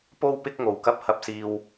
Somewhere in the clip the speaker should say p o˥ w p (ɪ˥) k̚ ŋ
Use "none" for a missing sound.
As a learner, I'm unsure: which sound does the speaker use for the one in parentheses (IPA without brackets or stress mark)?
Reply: ɪ˥